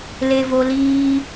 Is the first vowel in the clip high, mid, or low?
mid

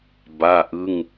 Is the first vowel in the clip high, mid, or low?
low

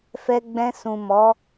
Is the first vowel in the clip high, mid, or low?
mid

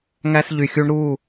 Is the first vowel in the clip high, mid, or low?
low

